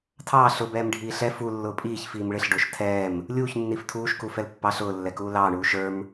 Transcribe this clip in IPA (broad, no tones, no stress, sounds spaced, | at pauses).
tʰ ɑː ɬ ʊ b ɛː m ɖʱ iː ɬ ɛ f u lː ʊː pʼ iː ç f iː m ɭ ɪ ɬ ɖ ʊː ʃ tʰ ɛː m | lʲ uː ç nː i f tʰ uː ʃ k u f ɛ l pː ɑ ɬ ʊː lː ɛ k uː l ɑː ɳ uː ʃ ə˞ m